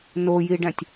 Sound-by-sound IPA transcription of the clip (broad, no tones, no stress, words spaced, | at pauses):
nojiɖæ̃tʲ